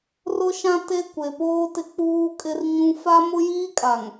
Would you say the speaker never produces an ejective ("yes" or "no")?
no